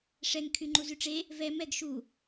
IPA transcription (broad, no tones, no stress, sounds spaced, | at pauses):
ʂ ɛ ŋ kʰ y ŋ͡ǃ u z y ʈ͡ʂ e | v ɛ m ɛ ɡ ʃ u